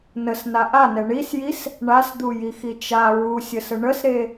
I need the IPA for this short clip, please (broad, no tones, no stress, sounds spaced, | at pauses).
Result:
n ə s n a ʔ a n ɛ ɳ i s j i s | ɳ a s d̪ u j i x i t͡ʃ a ɹ u sʲ ə s ə ɳ ə s ɾ e